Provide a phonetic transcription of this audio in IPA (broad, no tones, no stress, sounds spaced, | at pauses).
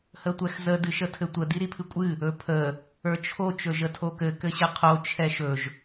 h ə tʷ ɛ x z ə d ɨ ʃ ə tʰ ɘ tʷ ə d i ɾ i pʰ ɨ kʷʼ ɨ | ɵ pʰ ə | ə˞ t͡ʃʰ o t͡ʃ ɵ ʒ ə tʰ o k ɘ k ɘ ɕ ɘ qʰ o t͡ʃʰ ɛ ʃ ɵ ʒ